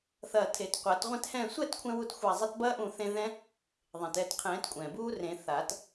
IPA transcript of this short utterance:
θɐː˧˩tʰe˨˩˦t qʷɐː˨˩˦tʁʷẽ˥˨thɛ̃ː˥˨ sʷɛː˥˨tkʷʰɛ̃˧wu˧˩t xʷa˧˩zˤɐ˦˥t bɐː˦˥ʔũ˧˩θẽ˧ ðɛ̃˦˥ | ðˤẽ˩tɛː˧˩t qʰɛ̃ː˨˩˦tkʷʼɛ̃˩buː˦˥rẽ˨˩˦ θa˨˩˦t

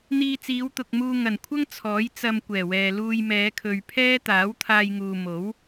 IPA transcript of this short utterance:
n̪iː˧t͡siː˨˧wt̪ʊ˨k̚muː˧ ŋɐ˨˩nkʷʰɐ˥ŋ t͡sʰɔː˨˥jt͡sɐ˧m kʷɛː˨˩wɛː˨luː˧j mɛː˨˧kʰɵ˨ɥpʰɛː˥t̪aː˨˥w t̪ʰaː˧jŋuː˨mo˨˥w

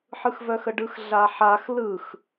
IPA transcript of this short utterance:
ħɯxvœxəɖɯx ɮaħax lɯx

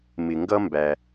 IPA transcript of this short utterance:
mɪ˩ŋɡʌ˥mbæ˩

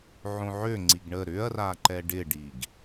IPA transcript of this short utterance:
ʕõʕø ŋ͡ǀiɡɳə ɾʏɐ̯ra ǃɛɖɪɖiɡ

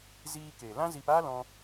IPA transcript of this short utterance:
ziː˧ke˨lã˦ zi˧paː˦ lɔ̃˧

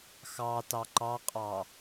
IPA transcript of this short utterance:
xɑtɑ ǃɑqʼɑ

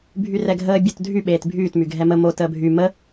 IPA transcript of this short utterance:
bʱyrɛɡʱəː bʲotdʱy ɓeːtbʱyːt myɡʱɛmə mo təːbʱy mə

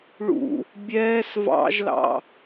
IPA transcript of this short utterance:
ɭṵ | bʲɛːs vɑ̰ʒlɑ̰

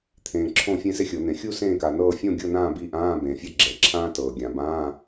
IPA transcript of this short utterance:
t̪ʰẽː˨ǁʰõ˥˧fʲẽ˥ se˥xʲɤ˨˩˦n̪ẽ˨ xʲu˥˧ sẽː˥˧ka˨nɤː˥˧ fʲõ˥˧ ɡʲɤ˥˧nãː˥˧bi˧˥˧ʔãː˧˥˧ bẽː˨fʲɤ˥ɡ͡ǁɛ˨˩˦ǁʰãː˥ tɤː˨ɡʲã˨˩˦ bãː˧˥˧

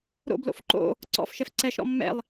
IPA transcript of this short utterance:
ɾo̰blo̰f ǃo̰ | ǀɔ̰fʃɛf ǀɛʃɾɔ̰ mːɛ̰lˠ

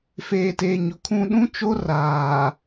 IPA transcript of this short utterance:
feː˨teː˨ɲʊ˨kʰũ˦ ɗũ˦t͡ʃo˦ raː˨

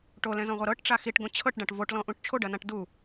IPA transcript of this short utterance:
ʈolɛ̃zɔ̃ʁʷɐ ɾɤʈʈ͡ʂa xiʈɡõ t͡ɕʰɤʈɖãʈ voʈlɔ̃ʔũʈ t͡ʃʰoɖɐnãʈ du

